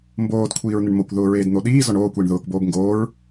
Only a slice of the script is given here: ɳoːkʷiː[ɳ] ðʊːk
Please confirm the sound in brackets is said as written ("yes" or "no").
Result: yes